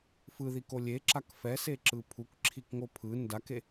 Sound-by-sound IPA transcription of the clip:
f ɯ ð i k o lʲ e ǁ a k f ɛ s e ǁ ɯ pʰ u k ǁʰ i k ŋ o pʰ ɯ n d a k e

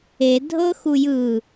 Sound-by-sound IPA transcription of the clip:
e dʱ ɤ x u j ɯ

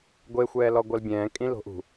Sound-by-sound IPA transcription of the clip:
ɡʷ e xʷ ɛː l ɔ ɡʷ ɜ l bʲ ɛ̃ː kʼ ĩ l o̤ ʔ ṳ

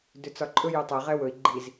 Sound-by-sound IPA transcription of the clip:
d ʏ t͡s ɒ ǃʼ ɵ j ɵ tˤ ɛ ʁ ɛ w ɵ i̯ ɡ͡ǃ i z

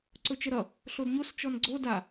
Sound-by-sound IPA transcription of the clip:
ǀ ɵ t͡ʃ ə ɾ ʌ | ɬ o d ɲ o s t͡ʃ ɔ n ɡ͡ǀ o d a

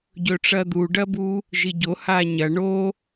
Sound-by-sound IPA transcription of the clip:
ɟ ɵ ʈ͡ʂ ɐ d̪ u ɖ ɐ b u | ʒ i ɟ o h a ɲ ɐ ɳ o

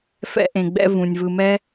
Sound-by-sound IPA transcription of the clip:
f ɛ̰˦ ʔ ẽ˨ ɡ͡b ɛ̰˦ v ũ˩ nʲ v ɯ˨ m ɛ˦

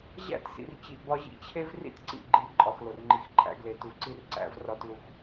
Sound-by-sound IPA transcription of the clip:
ʑ æ̰˦˨ t s ḭ˨ r t͡ɕ i˨ ʔ b ɒ˦ ʑ ḭ˦ t͡ɕʰ e˦ v r ḭ˦ t ǀ ḭ˨ ɡ͡ǃ i˨˦ ǃʼ ɒ˨ x l o˨ r ŋ͡ǃ i˨ x ǃʰ æ̰˦ ɡ l e˨ t u˨ ǀ i˦ r ǀ æ̰˦ v r ɒ˦ t l u˦ x

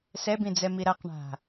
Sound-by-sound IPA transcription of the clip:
s ɛ b ĩ d͡z ɛ m i ɾ a q ɳ a̤

